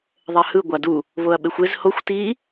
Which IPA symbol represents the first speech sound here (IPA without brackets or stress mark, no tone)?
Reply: ðˤ